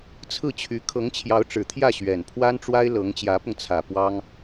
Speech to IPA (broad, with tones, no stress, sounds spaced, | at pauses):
t͡sʰ ɹ̩˥˩ t͡ɕʰ y˧˥ kʰ ɤ˧˥ ŋ t͡ɕʰ j ɑ˧˥ ʊ̯ ʈ͡ʂ ɻ̩˨˩ t̪ʰ j ä˥˩ ɕ ɥ ɛ˨˩ n pʰ w a˥ n ʈ͡ʂ w a˥ ɪ̯ l ɤ˧˥ ŋ t͡ɕ j ä˧˥ p ʊ˧ ŋ t͡sʰ ä˨˩ p w ɑ˥ ŋ